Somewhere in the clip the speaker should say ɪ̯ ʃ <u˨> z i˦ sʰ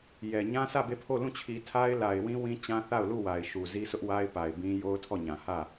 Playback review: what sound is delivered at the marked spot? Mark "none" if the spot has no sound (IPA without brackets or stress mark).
u˨